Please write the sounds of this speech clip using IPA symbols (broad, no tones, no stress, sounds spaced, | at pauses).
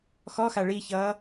x ɔ x a ɭ i ç ʌː